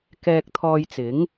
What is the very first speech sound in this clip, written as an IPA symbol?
k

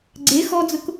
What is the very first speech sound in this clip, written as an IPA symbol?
ɡ͡ǀ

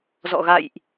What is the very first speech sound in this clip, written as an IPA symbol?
z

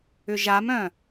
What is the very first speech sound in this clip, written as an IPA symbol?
ʏ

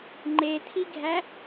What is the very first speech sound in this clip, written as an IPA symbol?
ŋ͡ǃ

